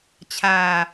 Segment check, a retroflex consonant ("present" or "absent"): absent